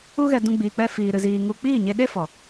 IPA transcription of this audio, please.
u˦ɣɛ˧dũ˧ ɡ͡biː˧k͡pɛ˦fiː˧ ɾɨ˧ziː˧ ŋu˧ k͡piː˦˨ɲe˧ɗe˦ fɔ˨

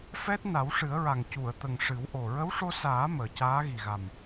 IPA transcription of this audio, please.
fɛ˦˥t̚ na˨˩˦wʂɨ˨˩˦ə̯ɹa˨˩ŋ cu˨˩˨ə̯t̪ə˨˩ŋ ʂɨ˨˩˦wʔo˨˩ ɹə˧˥wʂo˧saː˨˩˦ məː˨˩caː˧˥ɣi˨˩ɣa˨˩m

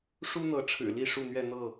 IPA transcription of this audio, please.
ʂu˦n̪ɤ˨˦ʈ͡ʂʰɻ̩˨˩li˥˨ ʂu˥˨n̪ɥɛ˥˨ n̪ɤ˥˨

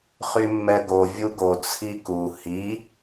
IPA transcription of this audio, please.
χymːɛɡo vʲuɡo t͡sʰiku hi

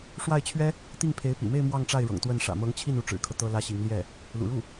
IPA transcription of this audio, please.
ʂwa˥˩ɪ̯t͡ɕʰɥɛ˥ | t̪i˥˩ŋpʰe˧˥ɪ̯pḭ˨˩me˥˧ɪ̯ mwɑ˥˧ŋʈ͡ʂa˥˩ɪ̯ɻɤ̰˨˩ŋ t̪wə˥˩n ʂä̰˨˩mɤ˧˥ŋt͡ɕʰi˥˩n u˧˥ʈ͡ʂɻ̩˨˩kʰɤ˦ t̪ɤ˥lä˥ɕi˧˥ŋ ljɛ˥˩ | lṵ˨˩ɻu˥˩

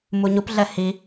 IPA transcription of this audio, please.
muɲupɮɛ hi

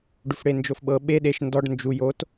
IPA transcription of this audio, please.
ɖufɽend͡ʒofɓɤ ɓe ɗeʃ ndɔɖ nd͡ʒu jot

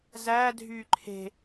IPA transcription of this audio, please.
zæːdʱyː ǃʰe̤

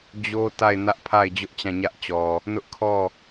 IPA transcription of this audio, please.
d͡ʑo˦ta˦˨ɪ̯ nä˦ʔpʰa˦˨ɪ̯ d͡ʑʊ˦ʔt͡ɕã˦˨ɲä˦ʔt͡ɕɔ˨ | nʊ˦ʔkʰɔ˦˨

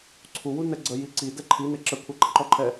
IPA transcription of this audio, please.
ǀʰuwunɛ ɡ͡ǀəji ǀidɛ ǃʰine ǁəkʷʰæǃə ǃɔǃʰɛ

